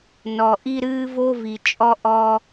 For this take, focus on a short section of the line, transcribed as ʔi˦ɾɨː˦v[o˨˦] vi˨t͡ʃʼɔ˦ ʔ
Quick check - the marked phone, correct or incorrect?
incorrect: o˦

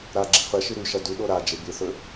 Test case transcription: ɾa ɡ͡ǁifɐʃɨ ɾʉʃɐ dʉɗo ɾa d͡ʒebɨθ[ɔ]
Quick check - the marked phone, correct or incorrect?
incorrect: ɵ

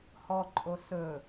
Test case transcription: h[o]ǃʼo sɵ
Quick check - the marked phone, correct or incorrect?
incorrect: ɔ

